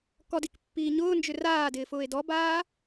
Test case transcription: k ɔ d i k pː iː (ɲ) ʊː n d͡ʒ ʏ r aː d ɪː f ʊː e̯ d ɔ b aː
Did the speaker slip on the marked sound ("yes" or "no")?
no